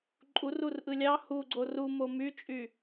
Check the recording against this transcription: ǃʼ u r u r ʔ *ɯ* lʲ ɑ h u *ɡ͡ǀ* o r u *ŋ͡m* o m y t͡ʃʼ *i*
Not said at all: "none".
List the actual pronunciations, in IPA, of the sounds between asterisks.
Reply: ɯ, ɡ͡ǀ, m, y

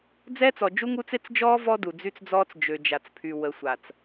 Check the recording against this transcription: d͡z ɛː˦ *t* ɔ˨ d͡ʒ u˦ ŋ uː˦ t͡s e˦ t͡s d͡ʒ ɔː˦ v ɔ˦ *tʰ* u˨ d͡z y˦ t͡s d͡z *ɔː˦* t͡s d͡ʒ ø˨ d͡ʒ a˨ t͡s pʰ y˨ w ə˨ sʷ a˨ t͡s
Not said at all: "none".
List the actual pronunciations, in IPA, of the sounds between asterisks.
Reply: t͡s, d, ɔː˦

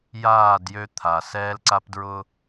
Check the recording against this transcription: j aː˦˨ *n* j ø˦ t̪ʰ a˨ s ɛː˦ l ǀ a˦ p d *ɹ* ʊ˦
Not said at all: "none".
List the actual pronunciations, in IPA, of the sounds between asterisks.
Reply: d, ɹ

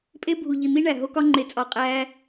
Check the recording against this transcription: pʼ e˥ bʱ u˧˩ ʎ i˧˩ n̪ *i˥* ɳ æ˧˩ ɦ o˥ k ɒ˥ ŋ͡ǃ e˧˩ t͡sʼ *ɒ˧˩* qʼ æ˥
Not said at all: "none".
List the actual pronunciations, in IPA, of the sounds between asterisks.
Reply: i˥, ɒ˧˩

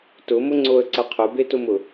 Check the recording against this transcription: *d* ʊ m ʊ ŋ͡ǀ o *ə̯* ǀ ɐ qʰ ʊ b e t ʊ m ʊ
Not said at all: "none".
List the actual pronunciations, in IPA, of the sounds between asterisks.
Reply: t, ə̯

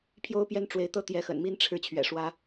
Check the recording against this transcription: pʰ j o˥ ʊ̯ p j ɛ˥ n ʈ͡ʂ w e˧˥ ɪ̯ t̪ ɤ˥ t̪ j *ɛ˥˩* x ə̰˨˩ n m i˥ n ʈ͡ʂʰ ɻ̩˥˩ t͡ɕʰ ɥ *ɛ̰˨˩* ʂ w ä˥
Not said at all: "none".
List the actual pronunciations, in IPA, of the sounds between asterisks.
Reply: ɛ˧˥, ɛ̰˨˩

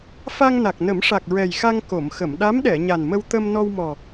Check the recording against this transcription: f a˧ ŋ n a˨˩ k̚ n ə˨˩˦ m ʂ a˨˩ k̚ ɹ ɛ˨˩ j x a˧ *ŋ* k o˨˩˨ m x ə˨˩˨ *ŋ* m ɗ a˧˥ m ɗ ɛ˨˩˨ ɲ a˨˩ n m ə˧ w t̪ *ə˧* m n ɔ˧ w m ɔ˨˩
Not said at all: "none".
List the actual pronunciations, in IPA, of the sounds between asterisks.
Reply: ŋ, none, ə˧

